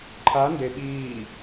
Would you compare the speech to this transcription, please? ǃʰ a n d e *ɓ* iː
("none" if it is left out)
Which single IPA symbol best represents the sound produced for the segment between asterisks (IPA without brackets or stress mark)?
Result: ɓ